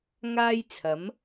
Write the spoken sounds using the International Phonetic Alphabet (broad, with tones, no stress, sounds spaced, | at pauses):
ŋ aː˥ j t͡sʰ ɐ˨˥ m